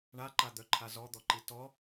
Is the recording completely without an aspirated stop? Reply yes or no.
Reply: no